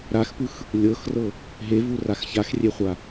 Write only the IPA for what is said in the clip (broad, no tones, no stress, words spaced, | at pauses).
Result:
ɾaxpɯx | lʲɤxrɤ | ɦevurax çaxrʲeχʷa